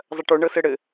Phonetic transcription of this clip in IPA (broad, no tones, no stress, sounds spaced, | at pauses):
zˤ ɐ ʈ o ɳ ɤ s ɘ ɽ ɘ